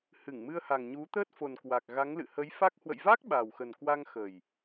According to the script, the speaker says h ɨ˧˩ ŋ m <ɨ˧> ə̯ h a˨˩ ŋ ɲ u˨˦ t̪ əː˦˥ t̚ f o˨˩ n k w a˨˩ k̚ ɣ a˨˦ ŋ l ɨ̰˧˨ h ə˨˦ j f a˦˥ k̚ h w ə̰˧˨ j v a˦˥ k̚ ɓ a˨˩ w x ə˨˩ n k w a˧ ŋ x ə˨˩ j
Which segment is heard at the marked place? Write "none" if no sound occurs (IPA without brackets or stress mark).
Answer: ɨ˧